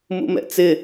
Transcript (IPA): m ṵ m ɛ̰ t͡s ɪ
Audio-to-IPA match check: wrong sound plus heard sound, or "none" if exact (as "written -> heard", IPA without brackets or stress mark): none